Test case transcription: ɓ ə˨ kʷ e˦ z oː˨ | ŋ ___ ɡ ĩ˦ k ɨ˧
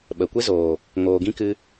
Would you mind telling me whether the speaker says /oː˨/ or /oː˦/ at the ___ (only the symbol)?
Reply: oː˨